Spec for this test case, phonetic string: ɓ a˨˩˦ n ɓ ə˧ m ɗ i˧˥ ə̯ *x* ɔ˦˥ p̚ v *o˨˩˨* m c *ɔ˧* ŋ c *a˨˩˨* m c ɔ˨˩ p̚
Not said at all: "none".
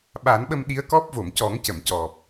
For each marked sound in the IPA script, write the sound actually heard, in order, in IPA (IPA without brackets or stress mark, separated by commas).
k, o˨˩˨, ɔ˨˩˦, ə˨˩˨